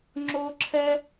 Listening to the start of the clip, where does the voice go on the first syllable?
high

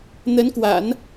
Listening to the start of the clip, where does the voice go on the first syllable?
rising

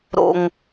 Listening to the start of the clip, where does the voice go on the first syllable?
low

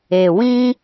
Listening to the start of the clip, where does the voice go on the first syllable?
low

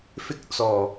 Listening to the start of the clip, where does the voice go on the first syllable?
high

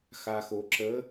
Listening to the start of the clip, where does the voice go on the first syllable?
low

